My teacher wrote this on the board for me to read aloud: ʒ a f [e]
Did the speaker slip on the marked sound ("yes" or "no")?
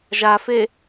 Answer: no